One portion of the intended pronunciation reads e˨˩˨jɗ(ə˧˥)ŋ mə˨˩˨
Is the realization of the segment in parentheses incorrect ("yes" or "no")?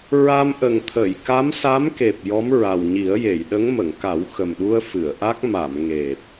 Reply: no